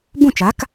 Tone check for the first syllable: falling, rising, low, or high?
falling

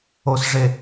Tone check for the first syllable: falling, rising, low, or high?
low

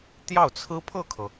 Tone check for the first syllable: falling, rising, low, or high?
falling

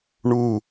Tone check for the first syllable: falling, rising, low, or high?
falling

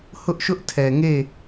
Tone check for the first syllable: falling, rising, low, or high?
high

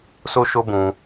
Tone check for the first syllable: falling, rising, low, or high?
high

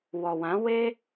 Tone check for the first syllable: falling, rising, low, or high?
low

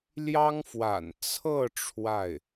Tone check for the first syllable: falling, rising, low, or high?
high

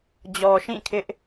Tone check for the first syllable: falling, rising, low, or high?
low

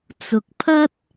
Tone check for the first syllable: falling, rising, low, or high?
low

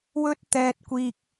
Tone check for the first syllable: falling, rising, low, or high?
high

